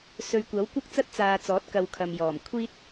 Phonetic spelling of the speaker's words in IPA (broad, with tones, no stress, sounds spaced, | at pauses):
s ɵ˨˧ ɥ kʷ ɐ˨˥ w kʷ ɐ˥ k̚ t͡s ɐ˥ t̚ t͡s aː˧ t͡s ɔː˨˥ t̚ k ɐ˧ w kʰ ɐ˨ m j ɔː˨˩ m kʷʰ iː˥ t̚